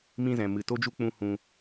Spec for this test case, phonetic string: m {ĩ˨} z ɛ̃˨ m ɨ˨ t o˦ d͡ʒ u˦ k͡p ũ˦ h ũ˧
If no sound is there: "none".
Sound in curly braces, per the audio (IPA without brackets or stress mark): ĩ˦